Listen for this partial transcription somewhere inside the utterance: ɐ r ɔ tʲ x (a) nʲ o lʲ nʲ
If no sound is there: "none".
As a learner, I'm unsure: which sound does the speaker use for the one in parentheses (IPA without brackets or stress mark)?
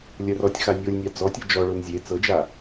a